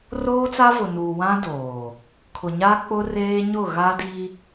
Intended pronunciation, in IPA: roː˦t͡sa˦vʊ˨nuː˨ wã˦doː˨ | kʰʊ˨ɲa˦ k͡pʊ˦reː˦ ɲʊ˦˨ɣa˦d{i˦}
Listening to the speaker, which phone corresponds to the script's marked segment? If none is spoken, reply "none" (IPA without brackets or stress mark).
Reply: i˦